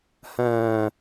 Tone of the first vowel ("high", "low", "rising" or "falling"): high